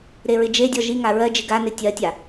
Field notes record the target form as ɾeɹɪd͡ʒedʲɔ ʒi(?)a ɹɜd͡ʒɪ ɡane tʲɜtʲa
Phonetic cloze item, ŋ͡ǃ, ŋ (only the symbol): ŋ